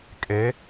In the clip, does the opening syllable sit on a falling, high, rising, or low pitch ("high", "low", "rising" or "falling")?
rising